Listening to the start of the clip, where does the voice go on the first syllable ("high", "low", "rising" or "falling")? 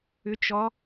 rising